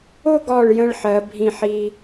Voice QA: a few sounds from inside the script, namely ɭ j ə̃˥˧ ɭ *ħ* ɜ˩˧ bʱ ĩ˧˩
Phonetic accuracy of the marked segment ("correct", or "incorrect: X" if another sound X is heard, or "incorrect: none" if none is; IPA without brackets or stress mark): correct